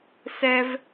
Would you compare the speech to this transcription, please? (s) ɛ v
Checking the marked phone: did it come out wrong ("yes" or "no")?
no